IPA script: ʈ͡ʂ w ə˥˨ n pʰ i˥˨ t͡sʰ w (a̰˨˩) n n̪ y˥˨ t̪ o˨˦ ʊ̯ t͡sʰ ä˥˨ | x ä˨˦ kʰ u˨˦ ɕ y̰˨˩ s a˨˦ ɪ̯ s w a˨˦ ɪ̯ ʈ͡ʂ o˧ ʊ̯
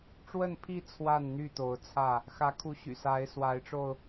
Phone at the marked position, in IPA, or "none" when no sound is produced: a˥˨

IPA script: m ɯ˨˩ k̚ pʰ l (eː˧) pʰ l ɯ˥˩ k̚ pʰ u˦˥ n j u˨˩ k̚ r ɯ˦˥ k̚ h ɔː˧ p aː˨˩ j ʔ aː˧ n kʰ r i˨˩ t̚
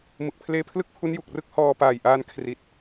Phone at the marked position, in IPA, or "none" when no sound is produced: eː˧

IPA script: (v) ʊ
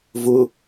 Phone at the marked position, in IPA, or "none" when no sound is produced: v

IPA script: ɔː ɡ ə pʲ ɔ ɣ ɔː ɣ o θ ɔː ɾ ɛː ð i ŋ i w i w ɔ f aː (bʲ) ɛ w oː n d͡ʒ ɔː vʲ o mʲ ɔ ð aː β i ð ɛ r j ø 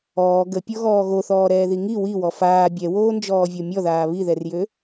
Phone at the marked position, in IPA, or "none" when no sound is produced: bʲ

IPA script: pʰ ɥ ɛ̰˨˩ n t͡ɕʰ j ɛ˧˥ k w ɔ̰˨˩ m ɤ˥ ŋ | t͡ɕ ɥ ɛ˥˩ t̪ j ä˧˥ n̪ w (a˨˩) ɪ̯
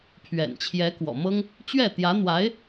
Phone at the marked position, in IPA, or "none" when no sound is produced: a˧˥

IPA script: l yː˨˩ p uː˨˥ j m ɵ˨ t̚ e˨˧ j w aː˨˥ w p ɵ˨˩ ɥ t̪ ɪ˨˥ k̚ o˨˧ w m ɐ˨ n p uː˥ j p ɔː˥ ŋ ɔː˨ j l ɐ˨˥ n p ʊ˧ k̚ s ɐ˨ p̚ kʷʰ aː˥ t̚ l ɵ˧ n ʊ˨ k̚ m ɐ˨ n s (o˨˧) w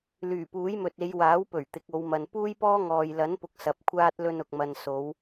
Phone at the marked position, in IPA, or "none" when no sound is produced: o˨˧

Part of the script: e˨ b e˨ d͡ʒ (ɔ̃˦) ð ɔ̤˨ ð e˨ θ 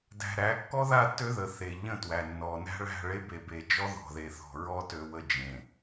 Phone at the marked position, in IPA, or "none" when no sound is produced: ɔ˦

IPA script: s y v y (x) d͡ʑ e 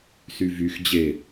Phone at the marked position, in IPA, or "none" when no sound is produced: x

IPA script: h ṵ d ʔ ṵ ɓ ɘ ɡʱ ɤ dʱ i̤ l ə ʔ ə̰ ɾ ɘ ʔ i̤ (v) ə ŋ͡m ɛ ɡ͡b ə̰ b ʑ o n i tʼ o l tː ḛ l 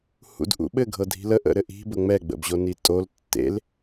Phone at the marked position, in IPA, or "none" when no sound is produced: b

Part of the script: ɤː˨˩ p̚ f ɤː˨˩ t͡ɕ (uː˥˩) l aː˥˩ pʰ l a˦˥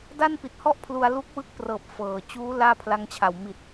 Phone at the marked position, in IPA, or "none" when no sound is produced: uː˦˥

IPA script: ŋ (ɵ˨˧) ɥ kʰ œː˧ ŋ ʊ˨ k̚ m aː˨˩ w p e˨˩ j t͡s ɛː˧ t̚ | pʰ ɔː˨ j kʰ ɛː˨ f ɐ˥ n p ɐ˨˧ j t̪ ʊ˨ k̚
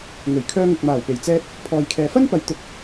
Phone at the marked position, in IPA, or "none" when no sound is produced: ɵ˨˩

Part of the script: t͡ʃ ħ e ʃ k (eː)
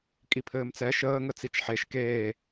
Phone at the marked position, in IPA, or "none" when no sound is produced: eː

